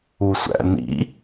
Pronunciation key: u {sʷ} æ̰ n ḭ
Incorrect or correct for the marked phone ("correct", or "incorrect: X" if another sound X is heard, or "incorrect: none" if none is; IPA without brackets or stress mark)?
correct